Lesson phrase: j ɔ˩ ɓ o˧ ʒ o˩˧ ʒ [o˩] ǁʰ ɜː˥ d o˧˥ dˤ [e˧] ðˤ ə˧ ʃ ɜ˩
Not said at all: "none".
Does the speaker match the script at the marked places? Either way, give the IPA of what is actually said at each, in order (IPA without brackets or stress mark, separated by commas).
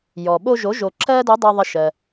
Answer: o˩, e˧